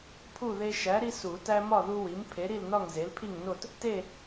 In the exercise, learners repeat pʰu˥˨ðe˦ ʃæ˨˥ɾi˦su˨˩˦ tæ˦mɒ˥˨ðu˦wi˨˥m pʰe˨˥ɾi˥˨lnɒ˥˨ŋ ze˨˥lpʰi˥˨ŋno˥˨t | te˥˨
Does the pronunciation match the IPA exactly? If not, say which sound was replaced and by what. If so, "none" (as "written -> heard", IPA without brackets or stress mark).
none